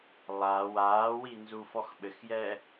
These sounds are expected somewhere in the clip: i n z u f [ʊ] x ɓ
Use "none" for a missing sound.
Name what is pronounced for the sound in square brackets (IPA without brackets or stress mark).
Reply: ɔ